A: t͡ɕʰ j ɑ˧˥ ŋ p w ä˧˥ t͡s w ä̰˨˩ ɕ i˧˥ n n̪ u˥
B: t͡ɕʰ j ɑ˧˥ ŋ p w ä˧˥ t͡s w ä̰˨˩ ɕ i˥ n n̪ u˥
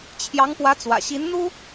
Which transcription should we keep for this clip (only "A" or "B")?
A